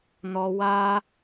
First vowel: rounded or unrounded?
rounded